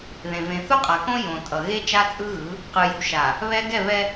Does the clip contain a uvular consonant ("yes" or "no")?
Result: yes